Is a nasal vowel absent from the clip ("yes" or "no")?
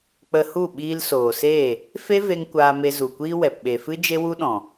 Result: no